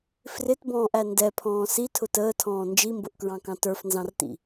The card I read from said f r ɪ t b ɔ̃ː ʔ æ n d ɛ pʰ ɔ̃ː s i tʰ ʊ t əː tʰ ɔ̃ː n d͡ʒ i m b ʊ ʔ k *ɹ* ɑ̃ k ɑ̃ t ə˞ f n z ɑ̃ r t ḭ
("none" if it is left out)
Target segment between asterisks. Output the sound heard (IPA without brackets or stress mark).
ɹ